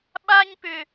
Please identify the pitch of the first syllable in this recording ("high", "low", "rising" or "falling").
high